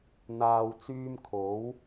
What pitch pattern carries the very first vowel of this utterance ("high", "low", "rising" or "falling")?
low